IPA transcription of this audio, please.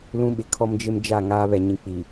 l ũ˦ ɓ ɪ˨ kʰ ɔ˦ m d͡ʒ ɪ˦ m d͡ʒ a˦˨ ŋ aː˦ β ɛ˨ ɲ ĩ˨ k͡p iː˨

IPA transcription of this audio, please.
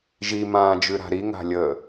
ʒ i m ãː d͡ʒ ʉ ɾ a̤ ɾ i ŋ a̤ lʲ əː

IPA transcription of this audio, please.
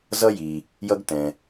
z ʌ˥ j i˩ | j ʌ˥ ɡ t ɛ̃˩

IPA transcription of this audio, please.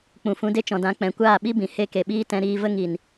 k͡p ũ˨ f ũ˧ d e˦ t͡ʃ ɔ̃˨ d ã˧ k͡p ɛ̃˨ kʷ aː˦˨ ɓ i˦ b ĩ˨ h e˦˨ k e˨ ɓ iː˦ t ɛ̃˧ ɾ iː˧ v ə˦ ŋ i˨ n

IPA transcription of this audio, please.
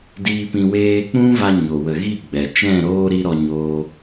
d iː˧ p ĩ˧ w eː˧ k͡p ũ˦ v a˧ ɲ o˨ w ə˨ ɣ i˦˨ ɡ͡b ɛ˨ t͡ʃ ɛ̃˦˨ ɾ oː˦ ɾ i˦ ɾ ɔ˧ ɲ oː˧

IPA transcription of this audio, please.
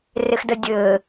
r ɪ x d ə dʲ ɘː

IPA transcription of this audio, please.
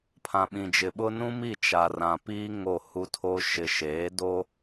pʰ ã˨ ɓ ĩ˨ d͡ʒ ɪ˨ ɓ ʊ˦ n ũ˦ m i˦˨ t͡ʃ a˨ r ã˨ p iː˦ ŋ o˦˨ h u˦ tʰ o˦ ʃ ɪ˨ ʃ eː˨˦ d o˦

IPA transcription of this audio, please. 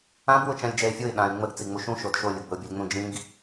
ã b w ʊ t͡ʃ ã lʲ d͡ʒ ɛ ɪ̯ fʲ o ɪ̯ ɗ ã ɪ̯ ŋ͡m ə ɡ t͡s i ŋ͡m u ʃ ũ ʃ o d ʃ o lʲ ʊ ɡ b ə ʊ̯ bʲ o lʲ ŋ͡m ũ d͡ʒ ĩ ɡ

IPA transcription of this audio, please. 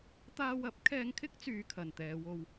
t̪ aː˧ w ɐ˨˥ p̚ kʰ ɛː˧ ŋ kʰ ɪ˥ k̚ t͡s yː˨ kʰ ɐ˨ n t̪ ɛː˨˧ w o˧ w

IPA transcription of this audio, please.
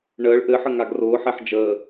ɳ əː ɭ ʔ ɘ ħ ə ŋ a ɡ r ʊː ħ ɛ ħ d͡ʒ əː

